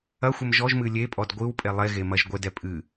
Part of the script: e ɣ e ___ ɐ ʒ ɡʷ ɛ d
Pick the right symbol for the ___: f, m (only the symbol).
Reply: m